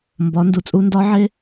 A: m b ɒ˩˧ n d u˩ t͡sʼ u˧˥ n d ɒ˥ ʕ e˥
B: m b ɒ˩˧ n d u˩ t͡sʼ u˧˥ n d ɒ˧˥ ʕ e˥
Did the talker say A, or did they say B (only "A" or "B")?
B